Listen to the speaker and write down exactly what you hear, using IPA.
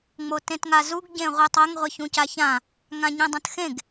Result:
ŋ͡m o t ẽ t ŋ a z u ɡ ɟ ẽ ʁʷ ɨ tˤ ɐ ŋ ʁʷ e ç ũ c a ç ã | ŋ ã ɲ ĩ dˤ ɐ̃ t x ẽ ɡ

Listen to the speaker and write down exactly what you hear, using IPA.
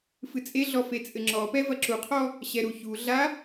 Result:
f ɨ t͡sʼ e ɮ ɔ f e t͡sʼ ɘ ŋ͡ǁ ɔ p ɛ v ɐ ǁ u qʰ ɔ | ɕ ɛ ɾ u ç u ɮ a

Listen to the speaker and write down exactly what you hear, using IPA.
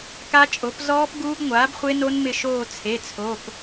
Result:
k a˦˥ t͡ʃʼ o˩˥ p z ɔː˦˥ p ɡ uː˦˥ ɡ ŋʷ aː˩˥ b χʷ e˦˥ n o˦˥ n m ɪ˦˨ ʃ oː˦˨ t͡sʰ e˩˧˩ t͡sʰ o˩˧˩ p

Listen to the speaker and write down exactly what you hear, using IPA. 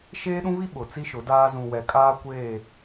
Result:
ʃ eː˦ ɗ ũ˦ β i˦ ɓ ʊ˨ t͡s i˦ ʃ ʊ˨˦ d aː˦ z ũ˨ w ɛ˨ kʼ aː˦ kʷ eː˦˨

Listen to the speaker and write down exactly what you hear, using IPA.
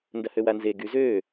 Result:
n d ɐ h ø w a n z e ɡ y z øː

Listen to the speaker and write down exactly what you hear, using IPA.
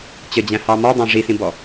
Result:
t͡ɕ ə d͡ʑ æ̃ h ɑ m ɔ dˤ ɑ̃ ʐ i s ĩ b ɔ

